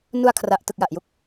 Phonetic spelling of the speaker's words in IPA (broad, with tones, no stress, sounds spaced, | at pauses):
n u˧ a̯ kʰ r a˨˩ ʔ t ɯ˨˩ k̚ j a˨˩ ʔ j u˦˥ k̚